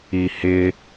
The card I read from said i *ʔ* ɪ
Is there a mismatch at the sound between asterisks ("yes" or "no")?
yes